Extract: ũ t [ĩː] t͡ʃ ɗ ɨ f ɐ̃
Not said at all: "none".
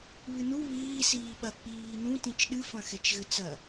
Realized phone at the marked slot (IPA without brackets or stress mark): ĩ